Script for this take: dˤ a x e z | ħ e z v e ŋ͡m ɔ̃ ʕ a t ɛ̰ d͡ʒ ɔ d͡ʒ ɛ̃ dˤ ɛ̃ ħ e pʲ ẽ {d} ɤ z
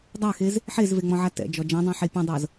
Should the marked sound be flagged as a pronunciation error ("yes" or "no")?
yes